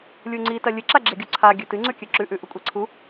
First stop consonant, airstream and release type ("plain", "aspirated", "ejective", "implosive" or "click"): click